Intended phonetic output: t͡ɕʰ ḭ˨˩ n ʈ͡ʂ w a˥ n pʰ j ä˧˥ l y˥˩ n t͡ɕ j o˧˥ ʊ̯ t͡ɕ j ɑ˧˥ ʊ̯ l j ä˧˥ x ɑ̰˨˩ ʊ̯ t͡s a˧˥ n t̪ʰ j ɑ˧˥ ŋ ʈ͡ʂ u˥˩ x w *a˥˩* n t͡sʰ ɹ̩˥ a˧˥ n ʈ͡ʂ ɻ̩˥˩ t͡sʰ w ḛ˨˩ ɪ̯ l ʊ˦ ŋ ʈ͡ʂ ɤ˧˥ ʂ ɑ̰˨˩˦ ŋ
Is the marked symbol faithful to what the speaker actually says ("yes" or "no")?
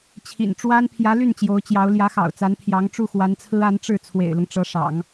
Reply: no